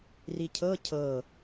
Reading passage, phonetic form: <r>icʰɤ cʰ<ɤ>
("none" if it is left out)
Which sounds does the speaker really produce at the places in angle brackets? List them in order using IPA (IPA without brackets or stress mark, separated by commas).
r, ɤ